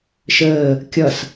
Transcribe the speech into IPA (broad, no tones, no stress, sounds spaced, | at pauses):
ʃ əː | kʲ ʌ s